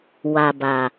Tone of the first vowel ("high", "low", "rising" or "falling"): low